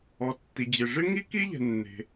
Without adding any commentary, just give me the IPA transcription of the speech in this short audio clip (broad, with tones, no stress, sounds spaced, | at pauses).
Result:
ɔ˩ tː i˩ d͡ʑ ɪ˩ ʐ ɪ˥ ŋ i˥ k i˥ ʎ ɛ̤˩ nː e̤˩